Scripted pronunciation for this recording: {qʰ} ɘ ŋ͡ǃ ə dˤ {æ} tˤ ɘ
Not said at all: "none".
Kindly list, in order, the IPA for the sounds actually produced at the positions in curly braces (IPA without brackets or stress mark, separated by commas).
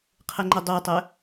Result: qʰ, œ